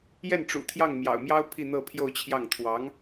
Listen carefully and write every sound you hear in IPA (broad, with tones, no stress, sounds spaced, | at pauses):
j ɛ˥˩ n ʈ͡ʂ ṵ˨˩ t̪ʰ j ɑ˥˩ ŋ m j ɑ̰˨˩ ʊ̯ m j ɑ˥ ʊ̯ pʰ i˥˧ n̪ ɤ˥˧ pʰ j o˥˧ ʊ̯ t͡ɕʰ j ɑ˥˩ ŋ t̪ʰ w ɑ˧˥ ŋ